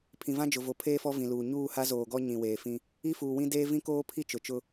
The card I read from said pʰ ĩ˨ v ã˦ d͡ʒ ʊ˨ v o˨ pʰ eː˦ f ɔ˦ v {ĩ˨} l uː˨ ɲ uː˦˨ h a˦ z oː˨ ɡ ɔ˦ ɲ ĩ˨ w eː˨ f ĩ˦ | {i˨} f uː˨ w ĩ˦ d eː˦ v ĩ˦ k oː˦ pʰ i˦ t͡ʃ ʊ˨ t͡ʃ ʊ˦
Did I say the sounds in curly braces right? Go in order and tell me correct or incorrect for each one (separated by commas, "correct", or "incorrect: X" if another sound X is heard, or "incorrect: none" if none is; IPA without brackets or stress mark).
correct, incorrect: i˦